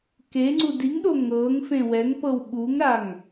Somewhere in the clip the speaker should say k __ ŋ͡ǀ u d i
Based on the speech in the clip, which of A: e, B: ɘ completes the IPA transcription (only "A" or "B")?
A